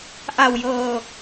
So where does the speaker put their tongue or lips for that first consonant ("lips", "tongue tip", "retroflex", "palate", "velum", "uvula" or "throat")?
throat